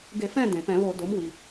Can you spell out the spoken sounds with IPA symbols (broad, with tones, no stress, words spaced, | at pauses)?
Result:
ɡe˧˩˧fɛ̃˦˨ dẽ˩pɛ̃˧˩˧βo˧˩˧ do˩˥mwi˩